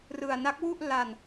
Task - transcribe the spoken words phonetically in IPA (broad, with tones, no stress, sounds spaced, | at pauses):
r ɯ˧ a̯ n a˦˥ k̚ w u˥˩ ʔ l a˧ n